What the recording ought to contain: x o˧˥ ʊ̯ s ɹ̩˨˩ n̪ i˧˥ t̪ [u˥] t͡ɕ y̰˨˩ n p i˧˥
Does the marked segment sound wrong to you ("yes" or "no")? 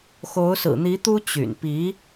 no